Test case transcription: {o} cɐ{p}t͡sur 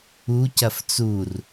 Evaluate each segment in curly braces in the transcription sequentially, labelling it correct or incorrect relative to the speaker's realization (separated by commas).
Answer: incorrect, incorrect